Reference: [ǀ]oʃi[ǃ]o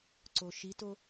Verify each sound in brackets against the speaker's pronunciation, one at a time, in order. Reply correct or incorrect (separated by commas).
correct, incorrect